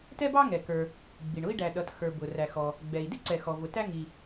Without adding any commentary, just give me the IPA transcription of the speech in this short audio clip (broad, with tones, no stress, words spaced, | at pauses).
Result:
tɛ˥bɑ˥ŋɛ˩kə˞˩ | ɡ͡bi˩ɳʊ˥i̯ ɖæ˩ɗʌ˩txə˞˩ bʊ˩ ræ˩xɔ˩ | ɡ͡bɛ˩i̯dɪ˥ ǀɛ˩xɔ˩vʊ˩tæ˥ ŋi˩